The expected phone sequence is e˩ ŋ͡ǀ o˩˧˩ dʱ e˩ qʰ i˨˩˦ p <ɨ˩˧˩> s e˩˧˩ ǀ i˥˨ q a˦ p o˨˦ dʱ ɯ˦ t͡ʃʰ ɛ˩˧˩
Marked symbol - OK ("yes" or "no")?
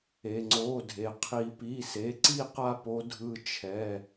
no